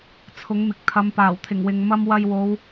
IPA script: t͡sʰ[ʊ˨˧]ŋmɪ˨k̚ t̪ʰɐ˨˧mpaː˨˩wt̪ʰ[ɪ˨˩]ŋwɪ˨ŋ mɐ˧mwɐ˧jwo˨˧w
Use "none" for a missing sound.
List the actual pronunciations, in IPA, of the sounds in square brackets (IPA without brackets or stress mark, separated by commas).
ʊ˨˥, ɪ˨˩